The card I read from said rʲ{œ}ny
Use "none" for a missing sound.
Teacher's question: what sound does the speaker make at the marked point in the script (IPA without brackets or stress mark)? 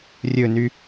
ɵ